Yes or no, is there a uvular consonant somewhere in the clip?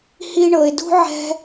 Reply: no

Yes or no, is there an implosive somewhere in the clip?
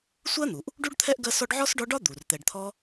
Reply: no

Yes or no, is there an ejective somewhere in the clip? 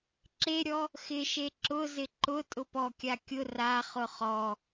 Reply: yes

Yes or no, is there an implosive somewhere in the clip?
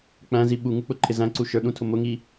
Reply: yes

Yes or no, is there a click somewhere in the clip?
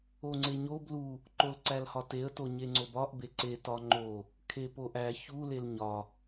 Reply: yes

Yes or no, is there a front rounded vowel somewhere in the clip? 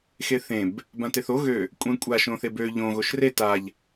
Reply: yes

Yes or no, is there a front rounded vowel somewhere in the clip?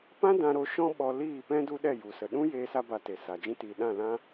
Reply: no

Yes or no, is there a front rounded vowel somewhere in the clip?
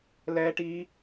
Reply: no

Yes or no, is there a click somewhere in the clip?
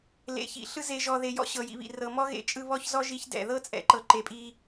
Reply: yes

